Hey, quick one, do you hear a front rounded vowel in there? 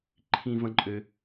yes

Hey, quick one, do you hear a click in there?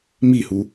no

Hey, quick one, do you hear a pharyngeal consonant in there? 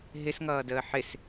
yes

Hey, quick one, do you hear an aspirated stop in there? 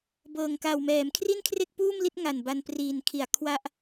yes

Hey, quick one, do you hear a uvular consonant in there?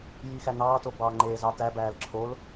no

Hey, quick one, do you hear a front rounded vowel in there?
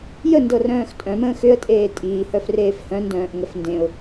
yes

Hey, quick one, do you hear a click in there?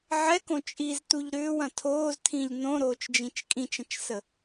no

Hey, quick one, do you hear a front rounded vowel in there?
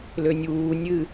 yes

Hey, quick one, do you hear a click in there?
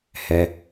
no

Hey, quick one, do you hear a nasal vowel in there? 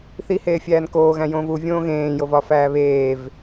yes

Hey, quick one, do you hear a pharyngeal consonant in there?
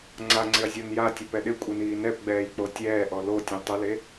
no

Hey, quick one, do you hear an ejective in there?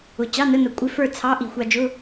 yes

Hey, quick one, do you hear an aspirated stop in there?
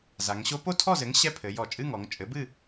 yes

